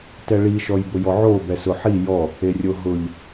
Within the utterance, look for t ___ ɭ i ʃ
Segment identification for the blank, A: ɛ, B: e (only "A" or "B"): A